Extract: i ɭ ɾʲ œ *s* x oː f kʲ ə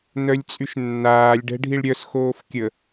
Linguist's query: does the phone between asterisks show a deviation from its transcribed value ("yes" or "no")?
no